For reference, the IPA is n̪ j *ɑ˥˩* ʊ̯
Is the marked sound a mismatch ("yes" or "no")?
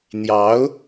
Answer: yes